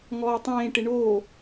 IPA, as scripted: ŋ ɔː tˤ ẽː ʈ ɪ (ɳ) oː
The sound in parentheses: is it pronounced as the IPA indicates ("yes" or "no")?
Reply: yes